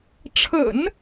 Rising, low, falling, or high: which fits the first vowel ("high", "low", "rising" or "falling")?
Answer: low